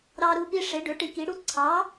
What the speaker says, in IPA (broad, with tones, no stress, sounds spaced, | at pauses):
ɾ ɑ˦ ɾ u˦ p i˦ ʂ e˨˥ ɖ ø˨˥ ʈ i˨˥ k i˨˥ ɽ u˦ ǀʰ ɑ˨˥